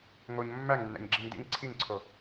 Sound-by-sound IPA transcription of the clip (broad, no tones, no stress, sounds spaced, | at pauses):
ŋ o ɲ mː æ ŋ nː æ̰ ɲ ɡ͡ǁ i ŋ d ḭ ŋ ǀʰ i ŋ ǀʰ o